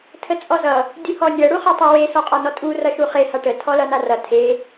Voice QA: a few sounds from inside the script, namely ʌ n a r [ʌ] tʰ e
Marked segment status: correct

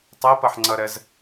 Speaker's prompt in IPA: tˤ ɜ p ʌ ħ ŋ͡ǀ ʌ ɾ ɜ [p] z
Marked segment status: incorrect: none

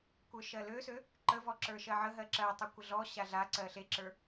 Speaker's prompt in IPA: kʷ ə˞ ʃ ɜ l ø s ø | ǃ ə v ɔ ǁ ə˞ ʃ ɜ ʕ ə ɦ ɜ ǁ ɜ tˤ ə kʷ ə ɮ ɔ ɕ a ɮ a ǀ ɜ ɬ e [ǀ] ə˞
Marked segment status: incorrect: ǁ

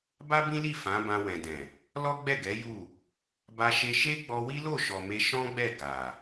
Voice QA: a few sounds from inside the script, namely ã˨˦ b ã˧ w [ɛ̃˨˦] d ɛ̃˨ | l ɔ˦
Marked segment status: incorrect: ɛ̃˨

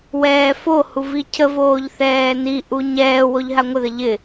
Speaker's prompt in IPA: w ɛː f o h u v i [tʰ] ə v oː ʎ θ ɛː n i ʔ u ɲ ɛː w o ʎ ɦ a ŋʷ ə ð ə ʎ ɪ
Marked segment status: incorrect: cʰ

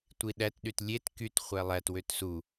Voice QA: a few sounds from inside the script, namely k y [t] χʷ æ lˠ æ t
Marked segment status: correct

